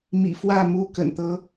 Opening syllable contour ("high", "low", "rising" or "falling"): low